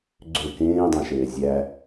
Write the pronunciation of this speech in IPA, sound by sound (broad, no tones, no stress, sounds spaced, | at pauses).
ɡ͡ǀ ø k ẽː dˤ æ̃ ʃ eː zʲ æ